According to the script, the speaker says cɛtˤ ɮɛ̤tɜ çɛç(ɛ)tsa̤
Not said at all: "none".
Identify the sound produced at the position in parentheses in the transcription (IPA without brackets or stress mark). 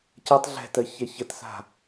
ə